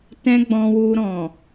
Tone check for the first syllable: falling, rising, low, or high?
high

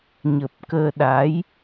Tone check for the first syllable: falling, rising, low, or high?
low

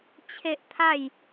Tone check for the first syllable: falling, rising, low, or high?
high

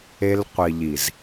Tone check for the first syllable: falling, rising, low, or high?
high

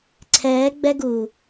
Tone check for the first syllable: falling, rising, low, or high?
rising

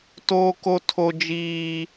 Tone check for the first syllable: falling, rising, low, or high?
high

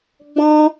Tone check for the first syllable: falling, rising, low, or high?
high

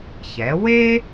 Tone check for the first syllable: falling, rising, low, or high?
rising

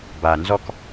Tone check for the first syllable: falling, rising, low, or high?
low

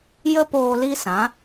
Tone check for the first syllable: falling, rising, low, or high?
high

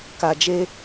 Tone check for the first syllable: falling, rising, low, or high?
low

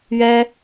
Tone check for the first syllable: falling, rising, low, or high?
high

